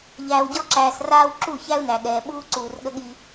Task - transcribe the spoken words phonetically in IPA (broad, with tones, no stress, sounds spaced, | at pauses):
ʎ æː˨ w ɟ ɔ˦ ǁ æː˨ s r aː˦ w ǁ u˦˨ ç æ˦ u̯ n æ˨ ɠ ɛː˨ ɓ uː˦ ǀ uː˨ r ɠ ə˦ ɠ i˦